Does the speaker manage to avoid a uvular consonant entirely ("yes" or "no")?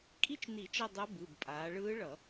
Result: yes